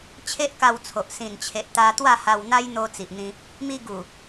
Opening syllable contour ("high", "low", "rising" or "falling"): high